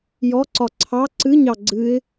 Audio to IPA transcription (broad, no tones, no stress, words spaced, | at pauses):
jɔǀɒ ǀʰɑ ǀɨɲɑ ɡ͡ǀɨɪ̯